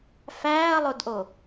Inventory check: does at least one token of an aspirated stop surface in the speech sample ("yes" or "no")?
no